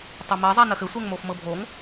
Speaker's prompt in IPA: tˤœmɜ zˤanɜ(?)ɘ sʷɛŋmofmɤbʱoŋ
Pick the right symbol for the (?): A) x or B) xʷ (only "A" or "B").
A